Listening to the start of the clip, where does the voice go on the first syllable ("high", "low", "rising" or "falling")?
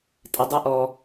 low